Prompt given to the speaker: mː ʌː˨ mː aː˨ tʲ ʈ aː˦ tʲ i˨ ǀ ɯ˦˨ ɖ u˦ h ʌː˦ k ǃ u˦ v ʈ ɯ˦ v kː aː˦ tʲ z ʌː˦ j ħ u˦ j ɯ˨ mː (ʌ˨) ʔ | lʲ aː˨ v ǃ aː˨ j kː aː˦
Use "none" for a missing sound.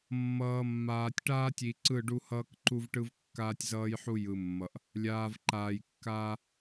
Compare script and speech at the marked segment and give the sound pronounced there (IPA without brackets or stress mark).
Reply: ʌ˨